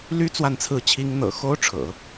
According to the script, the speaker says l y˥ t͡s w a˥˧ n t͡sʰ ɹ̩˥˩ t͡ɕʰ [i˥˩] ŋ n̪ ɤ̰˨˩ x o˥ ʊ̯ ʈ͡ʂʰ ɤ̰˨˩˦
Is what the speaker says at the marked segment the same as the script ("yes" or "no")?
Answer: no